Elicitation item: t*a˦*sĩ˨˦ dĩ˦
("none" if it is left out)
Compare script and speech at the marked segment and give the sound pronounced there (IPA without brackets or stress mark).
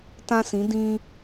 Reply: ã˦